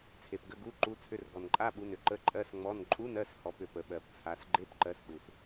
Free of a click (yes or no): no